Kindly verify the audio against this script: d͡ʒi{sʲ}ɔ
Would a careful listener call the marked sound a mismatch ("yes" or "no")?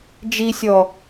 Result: no